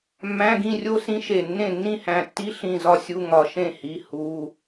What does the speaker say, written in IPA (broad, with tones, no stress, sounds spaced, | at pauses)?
mː æ̃˧˥˧ ɡ ĩ˥˨ rʲ o˥ s ĩ˥ ʃ e˧˩ nː ẽ˥˨ nː ĩ˥˨ h æ̃˧˩ tː i˥ ɬ ĩ˧˩ z ɒ˥ sʲ u˧˥˧ ŋ ɒ˧˩ ʃ ẽ˥˨ h i˧˥˧ h u˧˥˧